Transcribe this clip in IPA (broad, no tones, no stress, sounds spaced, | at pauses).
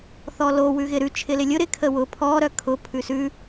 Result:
θ ɔ l o w ʉ ɣ ɪ ɾ ʉ t͡ʃʰ ɪ l ɪ lʲ ʊ ɾ ɪ kʰ ə w ʊ pʰ ɔ ɾ œ kʰ ʊ pʰ ʉ s ʉ